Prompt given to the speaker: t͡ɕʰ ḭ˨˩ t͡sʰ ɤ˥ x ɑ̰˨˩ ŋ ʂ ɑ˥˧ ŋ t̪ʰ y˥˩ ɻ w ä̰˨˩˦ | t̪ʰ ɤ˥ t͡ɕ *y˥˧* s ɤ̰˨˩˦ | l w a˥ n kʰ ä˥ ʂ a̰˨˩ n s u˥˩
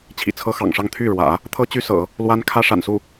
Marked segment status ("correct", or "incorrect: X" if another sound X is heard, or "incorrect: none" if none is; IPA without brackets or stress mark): incorrect: y˥